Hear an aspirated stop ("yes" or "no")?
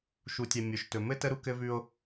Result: no